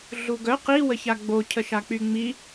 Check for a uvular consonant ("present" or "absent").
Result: present